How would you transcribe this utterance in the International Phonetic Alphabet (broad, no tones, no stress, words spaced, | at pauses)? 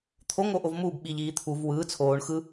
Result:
t̪ʰoŋ oʔovmuːb ɓiʎ iːt̪ʰuv wɯː t͡sʰoːɳ xɯ